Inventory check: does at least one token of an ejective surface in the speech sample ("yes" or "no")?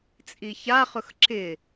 yes